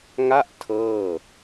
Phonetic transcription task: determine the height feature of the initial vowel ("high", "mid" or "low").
low